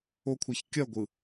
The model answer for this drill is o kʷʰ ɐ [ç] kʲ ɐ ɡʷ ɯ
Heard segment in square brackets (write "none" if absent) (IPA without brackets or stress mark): ç